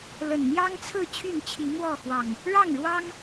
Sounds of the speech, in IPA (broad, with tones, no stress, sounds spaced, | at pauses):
l ə˨˩ n n̪ j ɑ˦ ŋ t͡sʰ ɹ̩˥˨ t͡ɕʰ y˥˨ n t͡ɕʰ i˨˦ m w ɔ˥˨ x w ɑ˨˩ ŋ | ɻ ɑ˥˨ ŋ ɻ w ɑ˦ ŋ